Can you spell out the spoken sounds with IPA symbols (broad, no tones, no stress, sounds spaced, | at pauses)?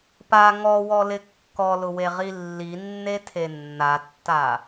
p a ŋ ɔ w ɔ l ɪ kː ɔ l ʊ w e ʁ i lː i nː e tʰ e nː a tː a